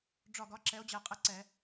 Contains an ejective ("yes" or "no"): yes